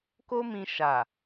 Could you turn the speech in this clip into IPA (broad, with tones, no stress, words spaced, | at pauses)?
ko˦mĩ˧ ʃa˨